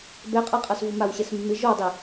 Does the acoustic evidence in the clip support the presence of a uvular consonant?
yes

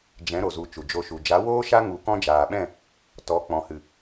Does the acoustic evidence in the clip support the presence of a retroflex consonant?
no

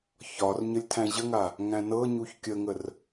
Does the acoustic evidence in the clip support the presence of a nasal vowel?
yes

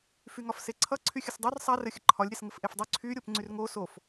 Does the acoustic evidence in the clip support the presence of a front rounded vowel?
yes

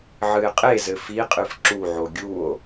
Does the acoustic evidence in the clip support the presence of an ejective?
yes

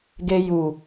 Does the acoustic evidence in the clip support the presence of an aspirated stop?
no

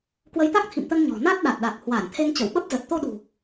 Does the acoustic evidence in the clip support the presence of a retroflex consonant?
no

